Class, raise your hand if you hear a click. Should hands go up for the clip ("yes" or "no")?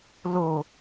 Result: no